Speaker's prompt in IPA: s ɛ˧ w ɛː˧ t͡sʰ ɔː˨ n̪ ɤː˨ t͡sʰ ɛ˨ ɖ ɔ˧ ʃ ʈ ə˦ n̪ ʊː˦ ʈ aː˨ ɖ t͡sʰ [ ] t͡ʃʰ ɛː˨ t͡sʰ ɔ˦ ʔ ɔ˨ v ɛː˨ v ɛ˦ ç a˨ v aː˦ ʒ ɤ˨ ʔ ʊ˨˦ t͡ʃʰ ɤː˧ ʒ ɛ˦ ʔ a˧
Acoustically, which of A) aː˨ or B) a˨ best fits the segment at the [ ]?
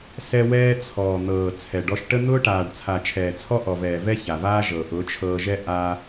B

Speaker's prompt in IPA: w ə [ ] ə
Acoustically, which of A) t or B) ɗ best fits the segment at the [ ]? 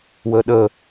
B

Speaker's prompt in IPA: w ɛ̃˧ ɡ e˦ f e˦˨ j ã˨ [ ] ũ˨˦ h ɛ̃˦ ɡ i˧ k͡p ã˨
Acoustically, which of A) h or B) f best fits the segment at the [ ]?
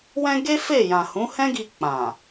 A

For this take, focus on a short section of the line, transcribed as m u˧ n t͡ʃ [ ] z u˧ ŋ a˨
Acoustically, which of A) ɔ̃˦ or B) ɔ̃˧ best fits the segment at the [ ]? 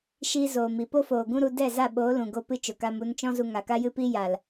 A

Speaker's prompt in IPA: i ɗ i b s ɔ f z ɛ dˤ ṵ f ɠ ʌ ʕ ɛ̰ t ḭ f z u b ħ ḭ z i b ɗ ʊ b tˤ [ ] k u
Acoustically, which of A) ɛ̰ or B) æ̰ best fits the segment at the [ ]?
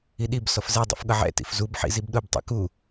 A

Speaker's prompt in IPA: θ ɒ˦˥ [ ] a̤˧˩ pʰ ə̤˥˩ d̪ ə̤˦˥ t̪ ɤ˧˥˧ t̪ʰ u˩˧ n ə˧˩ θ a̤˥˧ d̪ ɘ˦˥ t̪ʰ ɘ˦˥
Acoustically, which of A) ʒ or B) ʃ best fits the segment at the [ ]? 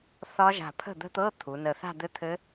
A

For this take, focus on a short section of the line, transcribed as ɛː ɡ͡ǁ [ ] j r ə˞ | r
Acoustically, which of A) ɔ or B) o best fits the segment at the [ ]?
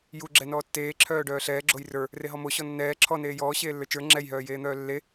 B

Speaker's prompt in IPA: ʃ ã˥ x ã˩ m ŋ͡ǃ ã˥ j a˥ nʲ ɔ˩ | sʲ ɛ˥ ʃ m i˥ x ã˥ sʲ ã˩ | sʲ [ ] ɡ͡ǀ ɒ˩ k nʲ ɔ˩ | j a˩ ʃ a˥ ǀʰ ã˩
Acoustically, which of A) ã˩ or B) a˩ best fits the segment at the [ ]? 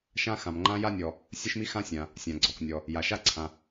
A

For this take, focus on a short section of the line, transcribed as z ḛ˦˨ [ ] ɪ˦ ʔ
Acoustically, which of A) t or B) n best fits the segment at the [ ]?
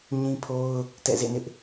B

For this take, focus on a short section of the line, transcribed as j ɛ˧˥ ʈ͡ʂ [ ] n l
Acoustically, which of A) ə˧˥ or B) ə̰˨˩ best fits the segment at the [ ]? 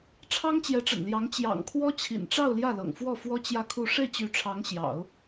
B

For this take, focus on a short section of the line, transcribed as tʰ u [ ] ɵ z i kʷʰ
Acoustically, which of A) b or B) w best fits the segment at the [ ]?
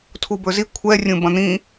A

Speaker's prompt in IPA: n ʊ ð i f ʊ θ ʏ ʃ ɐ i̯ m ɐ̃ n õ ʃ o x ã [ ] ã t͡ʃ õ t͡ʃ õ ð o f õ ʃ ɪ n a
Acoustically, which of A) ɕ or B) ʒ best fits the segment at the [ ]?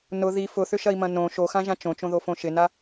B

